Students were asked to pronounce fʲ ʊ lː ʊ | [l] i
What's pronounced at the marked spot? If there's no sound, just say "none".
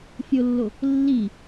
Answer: lː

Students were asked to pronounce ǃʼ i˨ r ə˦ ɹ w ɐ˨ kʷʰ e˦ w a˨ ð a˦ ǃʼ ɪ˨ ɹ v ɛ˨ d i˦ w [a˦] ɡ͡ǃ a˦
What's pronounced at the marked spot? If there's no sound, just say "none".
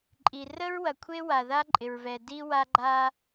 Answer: a˦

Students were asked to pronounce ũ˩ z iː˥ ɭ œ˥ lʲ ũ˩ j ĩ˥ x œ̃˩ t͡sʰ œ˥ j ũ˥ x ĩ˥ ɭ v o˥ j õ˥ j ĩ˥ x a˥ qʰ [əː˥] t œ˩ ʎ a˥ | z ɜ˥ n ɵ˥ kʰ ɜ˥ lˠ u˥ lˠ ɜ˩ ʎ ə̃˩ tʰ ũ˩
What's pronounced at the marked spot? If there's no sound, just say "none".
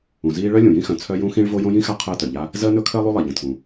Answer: əː˥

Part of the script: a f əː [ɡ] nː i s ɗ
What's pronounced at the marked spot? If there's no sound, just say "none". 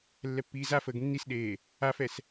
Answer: ɡ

